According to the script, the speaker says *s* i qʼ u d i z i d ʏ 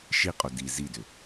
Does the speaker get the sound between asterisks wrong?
yes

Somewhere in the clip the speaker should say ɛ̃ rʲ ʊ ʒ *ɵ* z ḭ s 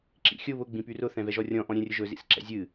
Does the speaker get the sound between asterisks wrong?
no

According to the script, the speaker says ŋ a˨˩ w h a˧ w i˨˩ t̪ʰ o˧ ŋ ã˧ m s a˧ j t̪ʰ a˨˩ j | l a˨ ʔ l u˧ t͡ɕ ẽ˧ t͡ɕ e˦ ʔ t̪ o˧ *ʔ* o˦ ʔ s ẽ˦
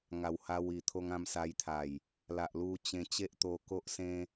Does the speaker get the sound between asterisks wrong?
yes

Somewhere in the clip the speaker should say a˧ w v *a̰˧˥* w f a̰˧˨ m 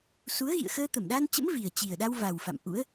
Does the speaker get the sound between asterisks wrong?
yes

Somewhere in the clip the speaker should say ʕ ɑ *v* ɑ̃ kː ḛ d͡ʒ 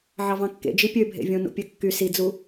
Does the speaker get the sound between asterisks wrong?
no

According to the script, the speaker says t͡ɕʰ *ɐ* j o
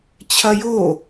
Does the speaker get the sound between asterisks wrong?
no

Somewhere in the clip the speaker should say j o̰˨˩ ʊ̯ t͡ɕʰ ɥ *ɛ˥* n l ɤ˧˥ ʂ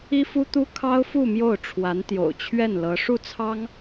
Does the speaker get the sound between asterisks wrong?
yes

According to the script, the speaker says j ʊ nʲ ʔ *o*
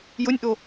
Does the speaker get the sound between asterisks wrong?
no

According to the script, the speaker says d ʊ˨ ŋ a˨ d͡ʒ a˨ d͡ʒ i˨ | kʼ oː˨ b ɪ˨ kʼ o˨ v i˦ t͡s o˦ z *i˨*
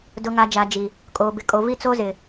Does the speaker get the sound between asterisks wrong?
yes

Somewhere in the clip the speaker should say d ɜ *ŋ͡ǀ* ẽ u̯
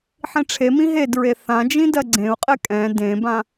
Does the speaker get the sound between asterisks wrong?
yes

